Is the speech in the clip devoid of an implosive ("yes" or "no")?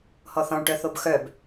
yes